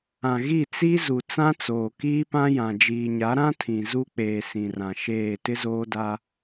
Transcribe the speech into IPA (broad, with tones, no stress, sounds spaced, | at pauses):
ã˨ ɣ i˦˨ t͡s i˦ z u˨ t͡s ã˦ t͡s oː˨ k iː˦ p ã˦ j ã˨ d͡ʒ iː˨ ɲ a˨˦ ɾ ã˦ tʰ ĩ˨ z u˦ k͡p eː˨ s ĩ˨ r ã˨ ʃ eː˦˨ t ɪ˦ z oː˦ d a˦